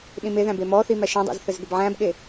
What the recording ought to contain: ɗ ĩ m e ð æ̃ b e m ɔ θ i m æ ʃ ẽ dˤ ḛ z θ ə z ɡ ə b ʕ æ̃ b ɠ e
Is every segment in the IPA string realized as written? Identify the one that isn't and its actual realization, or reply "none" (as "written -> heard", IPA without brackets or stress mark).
none